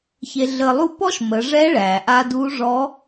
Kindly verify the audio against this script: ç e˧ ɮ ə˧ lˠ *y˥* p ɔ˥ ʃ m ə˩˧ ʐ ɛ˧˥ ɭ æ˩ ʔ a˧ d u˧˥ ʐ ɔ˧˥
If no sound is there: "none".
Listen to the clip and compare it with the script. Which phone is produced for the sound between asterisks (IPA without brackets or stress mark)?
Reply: u˥